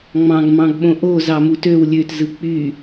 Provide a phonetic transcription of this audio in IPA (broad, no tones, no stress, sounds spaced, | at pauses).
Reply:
ŋ͡m ɑ̃ ɡ m ɑ̃ ɡ ɓ õ ʔ o z ɑ m u t ø w lʲ ø t z ɯ k͡p y